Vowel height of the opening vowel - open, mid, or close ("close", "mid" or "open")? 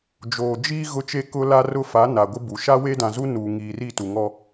mid